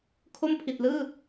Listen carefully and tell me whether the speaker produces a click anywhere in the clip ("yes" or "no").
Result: no